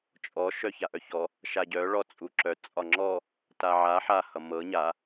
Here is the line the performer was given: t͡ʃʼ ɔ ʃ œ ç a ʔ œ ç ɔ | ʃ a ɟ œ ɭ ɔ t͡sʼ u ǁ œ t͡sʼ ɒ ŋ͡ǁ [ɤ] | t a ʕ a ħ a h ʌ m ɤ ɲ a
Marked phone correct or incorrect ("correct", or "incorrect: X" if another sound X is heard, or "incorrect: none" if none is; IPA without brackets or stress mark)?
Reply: incorrect: ɔ